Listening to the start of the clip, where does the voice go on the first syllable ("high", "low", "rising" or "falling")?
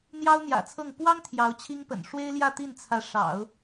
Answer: high